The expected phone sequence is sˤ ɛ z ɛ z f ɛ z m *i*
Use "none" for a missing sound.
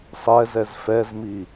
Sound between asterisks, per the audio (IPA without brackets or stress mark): i